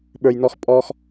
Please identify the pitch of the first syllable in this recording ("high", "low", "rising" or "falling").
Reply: low